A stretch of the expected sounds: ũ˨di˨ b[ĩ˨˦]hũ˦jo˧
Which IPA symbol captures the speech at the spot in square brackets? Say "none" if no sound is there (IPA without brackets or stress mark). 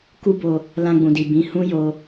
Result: ĩ˨˦